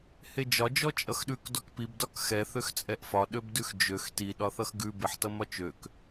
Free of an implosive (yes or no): no